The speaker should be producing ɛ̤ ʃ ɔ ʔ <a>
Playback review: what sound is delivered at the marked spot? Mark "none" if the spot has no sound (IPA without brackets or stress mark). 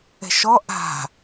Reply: a̤